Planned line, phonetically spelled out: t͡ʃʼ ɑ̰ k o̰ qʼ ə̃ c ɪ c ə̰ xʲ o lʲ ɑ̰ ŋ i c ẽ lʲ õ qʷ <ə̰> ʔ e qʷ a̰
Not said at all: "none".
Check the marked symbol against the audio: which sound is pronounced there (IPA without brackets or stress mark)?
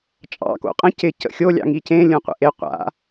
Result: ə̰